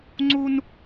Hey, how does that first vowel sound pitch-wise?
high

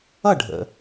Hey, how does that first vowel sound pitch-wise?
falling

